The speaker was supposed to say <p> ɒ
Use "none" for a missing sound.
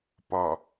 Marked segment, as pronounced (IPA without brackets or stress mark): p